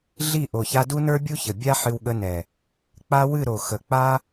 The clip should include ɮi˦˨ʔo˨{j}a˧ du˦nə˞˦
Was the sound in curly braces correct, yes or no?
no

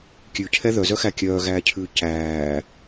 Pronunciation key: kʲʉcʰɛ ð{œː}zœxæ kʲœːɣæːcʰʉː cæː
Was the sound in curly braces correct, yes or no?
no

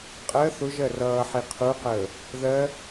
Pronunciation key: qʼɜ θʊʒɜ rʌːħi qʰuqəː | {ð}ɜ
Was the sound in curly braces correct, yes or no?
yes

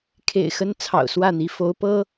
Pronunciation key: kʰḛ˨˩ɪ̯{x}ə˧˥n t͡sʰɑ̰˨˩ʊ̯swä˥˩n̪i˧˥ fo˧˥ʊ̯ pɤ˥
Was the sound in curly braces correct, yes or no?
yes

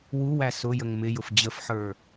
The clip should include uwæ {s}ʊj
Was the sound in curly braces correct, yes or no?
yes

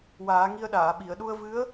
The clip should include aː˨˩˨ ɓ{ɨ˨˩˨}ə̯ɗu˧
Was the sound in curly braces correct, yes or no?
no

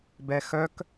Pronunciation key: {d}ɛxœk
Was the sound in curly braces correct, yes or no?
no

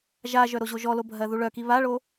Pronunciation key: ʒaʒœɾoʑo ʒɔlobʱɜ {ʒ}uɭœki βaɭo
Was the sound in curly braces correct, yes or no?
no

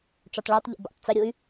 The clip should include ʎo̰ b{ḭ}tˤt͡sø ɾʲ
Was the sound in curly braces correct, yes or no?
yes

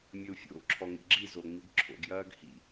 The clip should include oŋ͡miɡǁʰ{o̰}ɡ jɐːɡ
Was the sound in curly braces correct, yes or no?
yes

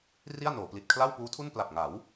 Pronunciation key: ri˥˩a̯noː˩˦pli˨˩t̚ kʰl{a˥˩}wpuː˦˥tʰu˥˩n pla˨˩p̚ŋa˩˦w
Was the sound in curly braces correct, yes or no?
yes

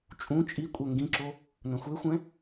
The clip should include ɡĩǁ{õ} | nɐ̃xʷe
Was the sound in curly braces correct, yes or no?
no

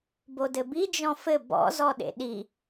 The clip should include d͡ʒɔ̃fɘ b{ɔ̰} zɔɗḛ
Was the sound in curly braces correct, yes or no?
yes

